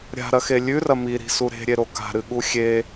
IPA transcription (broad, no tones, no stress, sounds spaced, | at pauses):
ɾʲ a̤ ɾ ɐ x e lʲ ʉ r ɐ m i ɾ i̤ s u ɾ e̤ ɾʲ e ɾ o k a̤ ɾ ɨ ɠ u xʲ e